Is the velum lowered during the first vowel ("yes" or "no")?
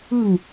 no